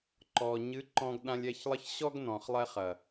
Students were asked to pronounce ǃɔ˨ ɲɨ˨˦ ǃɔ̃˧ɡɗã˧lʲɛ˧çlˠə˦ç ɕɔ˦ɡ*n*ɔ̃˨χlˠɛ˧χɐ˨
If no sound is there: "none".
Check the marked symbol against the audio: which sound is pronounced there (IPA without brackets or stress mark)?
n